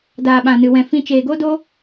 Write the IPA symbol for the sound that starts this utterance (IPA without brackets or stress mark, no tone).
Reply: d